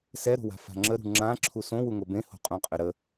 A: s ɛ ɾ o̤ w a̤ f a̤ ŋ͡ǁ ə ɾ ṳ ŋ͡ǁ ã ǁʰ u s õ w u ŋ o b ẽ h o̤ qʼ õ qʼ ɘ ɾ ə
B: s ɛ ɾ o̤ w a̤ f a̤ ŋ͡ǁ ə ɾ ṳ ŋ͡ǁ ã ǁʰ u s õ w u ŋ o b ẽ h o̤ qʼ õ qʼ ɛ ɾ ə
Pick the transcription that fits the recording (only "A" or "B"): A